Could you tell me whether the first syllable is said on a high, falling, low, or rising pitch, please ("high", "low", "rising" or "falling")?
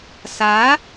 rising